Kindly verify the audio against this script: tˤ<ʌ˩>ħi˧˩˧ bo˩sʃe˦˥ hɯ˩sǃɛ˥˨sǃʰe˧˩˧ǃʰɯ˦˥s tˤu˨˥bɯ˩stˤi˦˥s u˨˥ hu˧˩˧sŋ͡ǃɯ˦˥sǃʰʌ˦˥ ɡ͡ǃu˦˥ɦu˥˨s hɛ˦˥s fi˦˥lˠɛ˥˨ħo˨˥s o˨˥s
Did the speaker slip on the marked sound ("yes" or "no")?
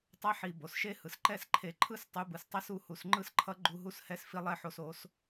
yes